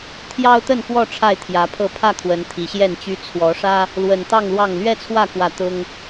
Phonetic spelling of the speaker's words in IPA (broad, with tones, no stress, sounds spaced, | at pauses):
t̪ʰ j ɑ˦ ʊ̯ t̪ ə˥˨ n k w ɔ˥˨ ʈ͡ʂʰ a˥˨ ɪ̯ t̪ʰ j ä˨˦ pʰ ɤ˥˨ pʰ ä˥˨ kʰ w ə˨˦ n t̪ʰ i˨˦ ɕ j ɛ˥˨ n t͡ɕ y˦ t͡sʰ w ɔ˨˦ ʂ ä˦ | l w ə˨˩ n t̪ ɑ˥˨ ŋ l w ɑ˥˨ ŋ l ɥ ɛ˥˨ t͡sʰ w ä˥˨ k w ä˨˩ t̪ ʊ˦ ŋ